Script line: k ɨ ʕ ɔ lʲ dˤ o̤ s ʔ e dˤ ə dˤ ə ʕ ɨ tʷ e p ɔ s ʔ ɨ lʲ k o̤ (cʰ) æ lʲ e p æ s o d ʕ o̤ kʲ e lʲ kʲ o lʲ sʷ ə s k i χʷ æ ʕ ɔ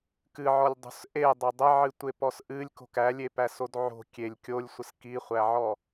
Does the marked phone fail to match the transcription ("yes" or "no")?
yes